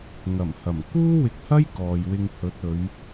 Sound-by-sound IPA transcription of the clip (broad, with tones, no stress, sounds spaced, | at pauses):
ŋ ɐ˨˩ m h ɐ˨˩ m k uː˥ w ɪ˨ k̚ h ɐ˥ j k ɔː˨ j w ɪ˧ ŋ h ɵ˨˥ t̚ ɵ˨˧ ɥ